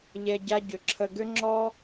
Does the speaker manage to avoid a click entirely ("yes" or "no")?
no